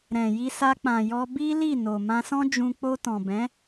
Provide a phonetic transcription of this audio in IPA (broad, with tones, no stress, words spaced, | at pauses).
ɾɛ̃˨ji˧ sa˧k͡pã˨jɔ˧ bi˦li˦˨no˨ mã˧sɔ̃˦d͡ʒũ˧ k͡po˧tɔ̃˨bɛ̃˨˦